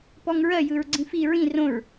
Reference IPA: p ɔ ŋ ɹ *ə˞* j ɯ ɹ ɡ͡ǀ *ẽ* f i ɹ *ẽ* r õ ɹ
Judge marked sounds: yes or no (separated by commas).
no, no, no